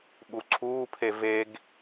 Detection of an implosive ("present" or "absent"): present